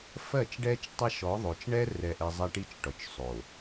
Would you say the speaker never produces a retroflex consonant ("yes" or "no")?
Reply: no